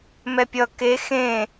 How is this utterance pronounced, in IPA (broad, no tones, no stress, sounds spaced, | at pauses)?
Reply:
m ɛ pʲ ʌ k e x ẽ